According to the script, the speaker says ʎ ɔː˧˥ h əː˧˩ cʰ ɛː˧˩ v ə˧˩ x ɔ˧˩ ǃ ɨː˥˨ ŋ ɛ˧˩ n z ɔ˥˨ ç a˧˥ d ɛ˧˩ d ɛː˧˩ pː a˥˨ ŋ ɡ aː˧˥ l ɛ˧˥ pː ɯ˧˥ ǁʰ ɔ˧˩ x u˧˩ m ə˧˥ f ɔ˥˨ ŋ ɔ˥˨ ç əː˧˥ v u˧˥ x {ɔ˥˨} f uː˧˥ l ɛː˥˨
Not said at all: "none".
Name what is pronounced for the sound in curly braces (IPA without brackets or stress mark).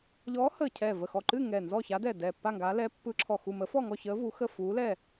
ə˥˨